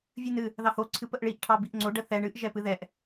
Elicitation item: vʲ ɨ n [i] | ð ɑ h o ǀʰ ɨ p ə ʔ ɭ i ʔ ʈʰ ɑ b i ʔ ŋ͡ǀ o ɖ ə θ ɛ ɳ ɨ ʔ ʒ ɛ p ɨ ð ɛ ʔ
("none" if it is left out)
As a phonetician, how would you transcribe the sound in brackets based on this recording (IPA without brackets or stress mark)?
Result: ɨ